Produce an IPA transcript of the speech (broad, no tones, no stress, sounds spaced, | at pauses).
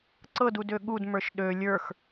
ǀ ɤ d u d ø ɠ u d m ə˞ ʃ ɗ ø lʲ ə˞ x